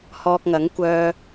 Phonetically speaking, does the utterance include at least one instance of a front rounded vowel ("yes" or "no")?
yes